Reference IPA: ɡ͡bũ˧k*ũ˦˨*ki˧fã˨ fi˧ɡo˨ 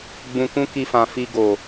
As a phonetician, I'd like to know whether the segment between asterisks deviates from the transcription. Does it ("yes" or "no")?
yes